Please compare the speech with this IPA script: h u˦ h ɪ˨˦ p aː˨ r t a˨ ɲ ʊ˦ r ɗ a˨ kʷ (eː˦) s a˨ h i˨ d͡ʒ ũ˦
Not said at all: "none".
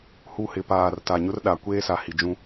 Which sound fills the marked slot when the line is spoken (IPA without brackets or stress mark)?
eː˦